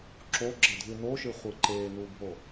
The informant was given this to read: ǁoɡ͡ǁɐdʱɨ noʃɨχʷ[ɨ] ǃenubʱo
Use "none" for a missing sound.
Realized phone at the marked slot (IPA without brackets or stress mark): ɨ